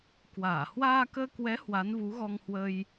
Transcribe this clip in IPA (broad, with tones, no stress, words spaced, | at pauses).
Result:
kwaː˧˩ hwaː˧kəː˧kwɛ˨˦ hwa˨˦nvu˨˦ɣɔ˧ŋhwə˧j